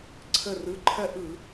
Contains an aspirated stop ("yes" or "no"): yes